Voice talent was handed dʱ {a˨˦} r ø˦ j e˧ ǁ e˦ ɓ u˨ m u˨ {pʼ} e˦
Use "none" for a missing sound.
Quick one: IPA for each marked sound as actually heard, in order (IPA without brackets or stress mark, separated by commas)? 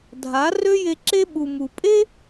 a˨˦, pʼ